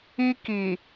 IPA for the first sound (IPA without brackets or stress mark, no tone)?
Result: i